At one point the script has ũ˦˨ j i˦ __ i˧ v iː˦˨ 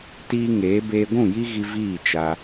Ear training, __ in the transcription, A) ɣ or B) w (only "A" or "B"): A